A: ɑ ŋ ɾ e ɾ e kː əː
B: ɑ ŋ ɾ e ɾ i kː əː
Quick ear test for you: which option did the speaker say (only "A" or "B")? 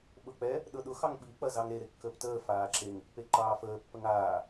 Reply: A